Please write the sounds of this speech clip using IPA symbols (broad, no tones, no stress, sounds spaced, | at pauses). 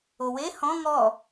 o w e h ɔ̃ ŋ ɔ